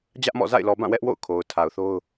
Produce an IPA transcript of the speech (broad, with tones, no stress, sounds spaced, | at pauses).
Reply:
d͡ʑ ä˦ ʔ m ɔ̰˦˨ z a̰˦˨ ɪ̯ l ɔ˨ b ã˦˨ w ɛ˦ ʔ w o̰˦˨ ʊ̯ kʰ o˨ ʊ̯ tʰ a˨ ʊ̯ θ o˦ ʊ̯